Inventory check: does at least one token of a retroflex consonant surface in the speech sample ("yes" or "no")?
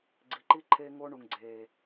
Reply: yes